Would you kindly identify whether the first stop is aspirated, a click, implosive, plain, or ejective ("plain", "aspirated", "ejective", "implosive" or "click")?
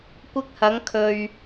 plain